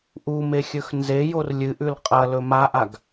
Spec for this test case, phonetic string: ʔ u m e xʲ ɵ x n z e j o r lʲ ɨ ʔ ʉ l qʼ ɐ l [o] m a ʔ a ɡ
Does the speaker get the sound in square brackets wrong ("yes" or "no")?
yes